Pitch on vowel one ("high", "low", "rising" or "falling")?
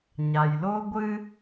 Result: low